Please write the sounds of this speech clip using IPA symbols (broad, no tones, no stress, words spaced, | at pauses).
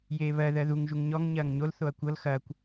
jeːβɜ ðɜðuŋ ʒuŋɲɔŋ ɲɐːŋɲol θoɐ̯kʷɤl xɐːkʷ